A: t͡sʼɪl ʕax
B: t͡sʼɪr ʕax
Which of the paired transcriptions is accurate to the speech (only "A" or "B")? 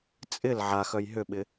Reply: A